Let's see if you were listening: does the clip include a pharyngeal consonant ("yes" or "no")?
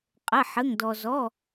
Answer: yes